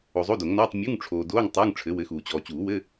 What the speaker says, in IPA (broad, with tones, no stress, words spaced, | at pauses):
o˨zˤo˧˥˧do˨˩˦ŋnɔː˧˥˧tˤ mʲu˧˥˧ŋʈ͡ʂʰoː˨doː˧˥˧ŋ tˤuː˧˥˧ŋʈ͡ʂʰɘ˨˥wɘ˨˥xuː˨ t͡ɕɔː˨t͡ɕuː˨˩˦ wɘ˧˥˧